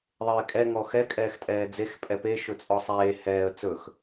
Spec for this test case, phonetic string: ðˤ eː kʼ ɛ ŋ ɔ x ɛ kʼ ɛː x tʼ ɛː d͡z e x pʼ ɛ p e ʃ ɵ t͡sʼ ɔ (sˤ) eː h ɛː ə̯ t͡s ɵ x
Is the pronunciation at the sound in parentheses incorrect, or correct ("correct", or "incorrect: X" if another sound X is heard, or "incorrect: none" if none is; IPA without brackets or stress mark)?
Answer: correct